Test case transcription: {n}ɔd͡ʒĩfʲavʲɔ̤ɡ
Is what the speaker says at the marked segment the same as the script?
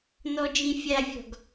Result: yes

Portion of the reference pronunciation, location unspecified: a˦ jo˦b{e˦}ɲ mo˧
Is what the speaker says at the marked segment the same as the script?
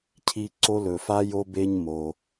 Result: yes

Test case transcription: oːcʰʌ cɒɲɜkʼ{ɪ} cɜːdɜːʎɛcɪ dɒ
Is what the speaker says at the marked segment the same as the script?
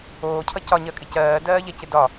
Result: yes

